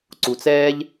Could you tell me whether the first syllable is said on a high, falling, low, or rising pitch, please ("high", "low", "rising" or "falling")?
low